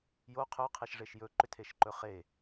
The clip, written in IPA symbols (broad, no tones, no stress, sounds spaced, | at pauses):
j o qʰ ɵ qʰ e ʃ ʐ e ʃ j ɵ ǃ ʏ tʰ e ʃ ǃ ɵ χ e